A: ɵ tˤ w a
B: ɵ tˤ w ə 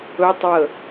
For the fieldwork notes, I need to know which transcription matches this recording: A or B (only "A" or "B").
B